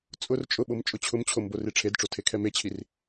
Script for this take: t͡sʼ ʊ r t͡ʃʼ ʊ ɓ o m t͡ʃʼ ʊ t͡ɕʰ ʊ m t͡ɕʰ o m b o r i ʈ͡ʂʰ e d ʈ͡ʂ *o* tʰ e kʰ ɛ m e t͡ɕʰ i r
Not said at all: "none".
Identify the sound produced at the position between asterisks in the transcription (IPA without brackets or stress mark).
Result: o